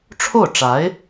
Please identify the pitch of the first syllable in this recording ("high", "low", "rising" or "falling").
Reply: falling